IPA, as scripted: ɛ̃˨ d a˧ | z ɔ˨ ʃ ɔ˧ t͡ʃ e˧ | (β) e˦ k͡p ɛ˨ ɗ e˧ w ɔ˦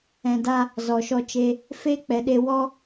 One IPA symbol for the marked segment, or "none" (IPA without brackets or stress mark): f